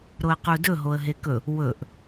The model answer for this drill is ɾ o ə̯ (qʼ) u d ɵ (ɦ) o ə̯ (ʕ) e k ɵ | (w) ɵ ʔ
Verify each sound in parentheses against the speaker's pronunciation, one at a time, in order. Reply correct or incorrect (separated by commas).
incorrect, correct, incorrect, correct